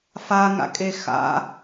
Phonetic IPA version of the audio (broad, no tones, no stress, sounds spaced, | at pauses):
f a ŋ a̰ kʼ e x a̰